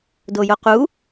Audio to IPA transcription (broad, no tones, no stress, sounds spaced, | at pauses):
d o j o q u